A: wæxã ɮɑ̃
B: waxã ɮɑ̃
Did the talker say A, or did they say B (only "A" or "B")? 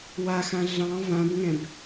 B